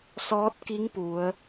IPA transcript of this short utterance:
s ɔː˧˥ t̚ k i˧˥ ŋ p u˩˧ ə̯

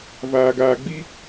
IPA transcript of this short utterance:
v aː˨ ɡ aː˨ ɡ͡b i˦

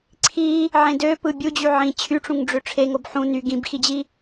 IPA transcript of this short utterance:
ǀʰ i | ʕ ẽ d ø p ɯ bʲ u d͡ʑ y ʕ ĩ t͡ɕʰ y ʈ͡ʂ ũ ŋ ɖ͡ʐ ø ʈ͡ʂʰ e ŋ o b ħ ũ n y ɡ ĩ b x i d͡ʑ i

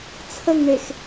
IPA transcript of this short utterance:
t͡sʰ ə ŋ ɳ e x

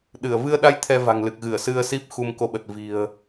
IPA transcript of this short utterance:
ɗ ɨ˧˩ ə̯ v ɨ˧ ə̯ ɗ a˧ j t̪ʰ ɛ˧ v a̤˨˩ ŋ l ɨ˨˩ k̚ ɣ ɨ˧˩ ə̯ s ɨ˧ ə̯ s i˦˥ p̚ x u˧ m k o˧ ɓ ə˨˩ t̚ v i̤˨˩ ə̯

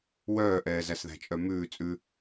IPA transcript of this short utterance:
w œː ʔ ɛː z æ s ð æ̤ t͡ʃʼ œ m ʉː t͡sʼ ʉ

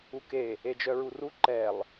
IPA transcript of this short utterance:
u k e | e d͡ʒ œ ɹ u r u ǃ ɛ lˠ

